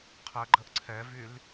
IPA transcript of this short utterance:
qʰəɡ͡ǃəʔ ǀʰɛvyl

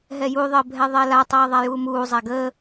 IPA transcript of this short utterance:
ɦɛjuðˤəː bʱɛðˤɛlatˤɛː ðˤajuːmuːzˤa ɡəː

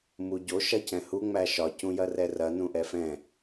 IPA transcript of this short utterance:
muɟo ʃɐcɛ̃hu ŋ͡mæʃɒ cũjɐrɛrɐ nũʔɛfɛ̃

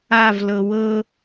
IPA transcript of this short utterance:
avlɤ wɤ

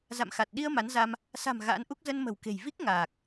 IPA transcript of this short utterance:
za̰˧˨mxa˨˩t̚ɗi˧ə̯ ma˨˦nza˧m | sa̤˨˩m ɣa̰ː˧˥nʔu˦˥k̚ zə˧nmə̤˨˩wke̤˨˩j vi˦˥k̚ ŋaː˨˩k̚

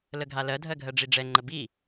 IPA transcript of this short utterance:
ləɡʱalɜdʱɜ ɡʱɜɖ͡ʐiɖ͡ʐɛŋ͡ǃə bi

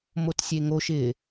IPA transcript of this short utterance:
motsʲeŋo ʃɪ

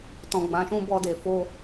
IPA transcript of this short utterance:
tɔ̃˨ɡ͡bã˨ʃũ˧ bɔ˧de˨fo˧

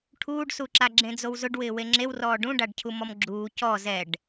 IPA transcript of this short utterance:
ʈʰuːɖsuǁa ɡ͡ǁẽd͡zowzʊɖwɪː weŋ͡ǁewrɔː ɖũɖaɖcʰu mɔmɡ͡ǁuː cɔ zɛɖ

